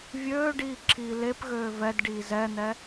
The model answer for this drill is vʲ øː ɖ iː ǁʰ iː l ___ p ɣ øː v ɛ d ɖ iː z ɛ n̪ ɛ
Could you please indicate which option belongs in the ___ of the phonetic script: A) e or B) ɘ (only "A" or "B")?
A